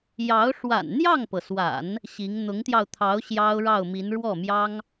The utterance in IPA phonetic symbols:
jɑ˧˥ʊ̯ ʂwa̰˨˩nn̪jɑ˥˩ŋpɤ˩swa̰˨˩˦n | ɕi˧˥ŋ n̪ʊ˧˥ŋt̪jɑ˧ʊ̯t̪ʰɑ˧˥ʊ̯ ɕjɑ˥ʊ̯ɻɑ˥˩ʊ̯mi˧˥n ɻwɔ˥˩mjɑ˥ŋ

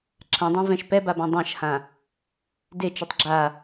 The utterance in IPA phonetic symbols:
ǁʰãdˤɛ̃vɛ̃ʃ pɛbabã dˤãʃhã | det͡ʃɨtˤ ɡ͡ǁa

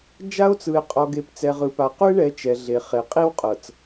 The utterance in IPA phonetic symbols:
d͡ʒa˦o̯t͡sɯ˨e̯qʼɔ˨ɡe˨p t͡sɛ˨ʁɯ˨pa˨ qu˦e̯ɳɛ˨˦ t͡ʃɛ˨ɮe˨ χe˨qʼi˦w qʼɤ˨t͡s

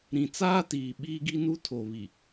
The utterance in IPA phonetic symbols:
ɾĩ˨ t͡saː˦tiː˨ ɓiː˦ɡi˦nu˦ tʰo˨βi˨

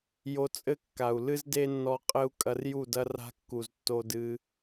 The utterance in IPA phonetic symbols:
jo˧t͡sʼɘ˦ kːa˨u̯lɨ˦zde˦nːɔ˧ qʼɘ˦u̯kʼɐ˧r ju˦˨dɐ˦ ra̤˧kːu˨z tːo˧dɨ˧

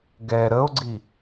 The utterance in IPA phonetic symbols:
ɡɛ ɾəo̯ɡ͡ǀi

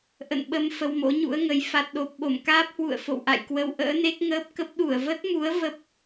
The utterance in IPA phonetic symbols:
ʔə̰˧˨nɓə˧m fə˧wmo̰˧˥ɲṵ˧˥ə̯ŋə˨˦j fa˨˩t̚ɗo˨˩p̚ ɓo˧˩mkaː˦˥p̚ hwṵ˧˨ə̯fo̰˧˨w ʔa̰˧˨jkwə˧w ʔə̰ː˧˥ne˦˥k̚ŋəː˦˥p̚ kə˦˥p̚ ɗu˧˩ə̯və˦˥t̚mu˨˦ə̯ və˦˥p̚

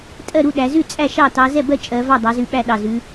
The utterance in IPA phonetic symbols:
tʼɜ˥˩ɾu˥˩ ɗæ˨˦ zʉ˥˩ t͡sʼæ˥˩ʃɑ˥˩tɑ˨˦ zɛ˥˩bɜ˥˩ t͡ʃʼɜ˨˦ vɑ˥˩dˤɑ˨˦zʉ˧˩ ɓæ˥˩ɗɑ˧˩zʉ˨˦

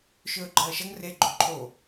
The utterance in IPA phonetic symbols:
ʃɵːɡ͡ǃʌːʃʌŋ re ɡ͡ǃoǃʰo

